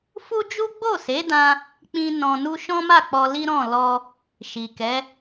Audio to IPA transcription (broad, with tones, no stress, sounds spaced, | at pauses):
f u˦ d͡ʒ u˦ ɡ͡b o˦˨ s e˨˦ d ã˧ | k͡p ĩ˦ n ɔ̃˧ n u˦ ʃ ɔ̃˦ m a˦˨ k͡p ɔ˧ l i˦ ɾ ɔ̃˦˨ l ɔ˧ | ʃ i˨ k ɛ˨˦